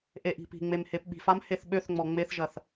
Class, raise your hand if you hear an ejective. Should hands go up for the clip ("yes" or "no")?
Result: no